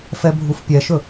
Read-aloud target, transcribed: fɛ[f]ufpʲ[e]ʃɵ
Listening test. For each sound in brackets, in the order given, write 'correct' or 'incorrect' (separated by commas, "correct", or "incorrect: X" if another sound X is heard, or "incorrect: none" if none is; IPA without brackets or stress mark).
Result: incorrect: bʱ, incorrect: ɛ